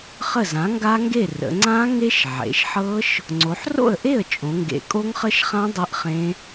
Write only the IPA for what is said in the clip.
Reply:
χ ə˥˩ z ã˩˥ ŋ ɡ a˦˥ ŋ ɡ e˥˩ r ə̰˩˧ ŋ͡ǀ ã˦˥ ŋ e˦˥ ʃ ʕ ḛ˩˧ ʃ ħ ɤ˦˥ ʃ | ŋ͡ǀ o˩˧ ħ r o̰˥˩ ə̯ ʔ e˥˩ ə̯ t͡ʃʼ õ˩˧ ŋ ɡ ḛ˨˩ kʼ o˦˥ ŋ χ ə˦˥ ʃ χ ã˦˥ dˤ ɤ˦˥ ʔ χ ẽ˦˥

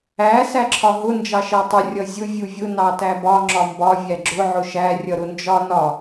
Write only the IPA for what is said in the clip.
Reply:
æ s æ ǁʰ ɒ ɦ ʊ n d͡ʒ ɑ ʃ ɜ tˤ ʊ rʲ ʌ zʲ ʊ vʲ u vʲ ʊ n ɑ t æ b ɒ ŋ͡ǁ ɒ m b ɒ vʲ æ ɡ͡ǁ ʊ ʕ ʊ ʃ æ rʲ ʌ ɾ ʊ n d͡ʒ ɒ n ɒ

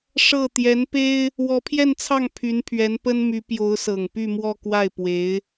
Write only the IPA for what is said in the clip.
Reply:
ʂ ɤ˥˩ t̪ j ɛ˧˥ n p e˥ ɪ̯ | w ɔ˧˥ pʰ j ɛ˥˧ n t͡sʰ ɑ˥˩ ŋ pʰ y˧˥ n pʰ ɥ ɛ˧˥ n p ə˥ n m y˧˥ p j o˧˥ ʊ̯ s ɤ˨˩ ŋ p y˥˧ m w ɔ˥˧ k w a˥˩ ɪ̯ p w e˧˥ ɪ̯

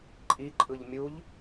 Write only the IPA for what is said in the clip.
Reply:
ǃʼ i ǃʼ ɯ ʎ mʲ u ʎ

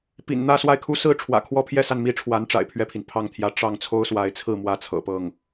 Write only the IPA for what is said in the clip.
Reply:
p ḭ˨˩ n n̪ ä˥˧ s w a˥˩ ɪ̯ kʰ u˥ s ɹ̩˥ ʈ͡ʂʰ w ä̰˨˩ kʰ w ɔ˥ pʰ j ɛ˥˧ s a˥˩ n m i˥ ʈ͡ʂʰ w a˧˥ n ʈ͡ʂ a̰˨˩ ɪ̯ pʰ ɥ ɛ˥˩ pʰ i˩ n pʰ ɑ˥˩ ŋ t̪ʰ j ä˧˥ ʈ͡ʂ ɑ˥˩ ŋ t͡sʰ o˥ ʊ̯ s w a˧˥ ɪ̯ t͡sʰ ɹ̩˥˧ m w ä˥˩ t͡sʰ ɤ̰˨˩ p ɤ˥˩ ŋ

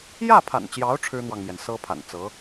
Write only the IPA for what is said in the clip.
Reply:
j ä˥˩ pʰ a̰˨˩ n t͡ɕ j ɑ˧˥ ʊ̯ ʈ͡ʂʰ ɻ̩˥ n̪ w ɑ˨ ŋ m j ɛ˩ n s ɤ˥ pʰ a̰˨˩ n t͡s ɤ˧˥

